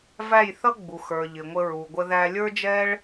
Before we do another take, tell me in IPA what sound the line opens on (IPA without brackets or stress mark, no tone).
v